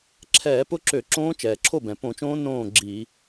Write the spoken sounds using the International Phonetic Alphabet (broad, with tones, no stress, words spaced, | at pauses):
ǁʰɛː˧˩˧pʊ˦˥ǁø˧˩˧ ǁõː˦˥t͡ʃɛː˩ǁʰo˥˨bɛ̃˩ põ˧˩˧t͡ʃõː˦˥ nõː˥˨ɡ͡ǁi˧˩˧